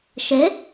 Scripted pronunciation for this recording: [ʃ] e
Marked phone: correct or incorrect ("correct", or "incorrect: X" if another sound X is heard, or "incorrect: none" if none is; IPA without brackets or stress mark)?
correct